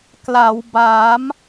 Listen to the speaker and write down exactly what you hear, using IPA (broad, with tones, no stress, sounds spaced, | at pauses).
k l a˩˦ w b aː˩˦ m